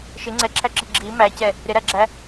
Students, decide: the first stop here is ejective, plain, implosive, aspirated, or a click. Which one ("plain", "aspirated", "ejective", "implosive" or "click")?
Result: click